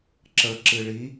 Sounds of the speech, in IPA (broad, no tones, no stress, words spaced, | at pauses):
ǁə ǁɨɭi